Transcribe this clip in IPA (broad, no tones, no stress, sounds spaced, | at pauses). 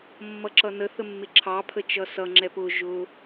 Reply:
mː ʌ ǁ ʌ n ə θ ə mː ɪ ǁʰ ɑ pʰ ə t͡ʃ ʌ s ʌ ŋ͡ǁ ɛ p ʊ ʒ ʊ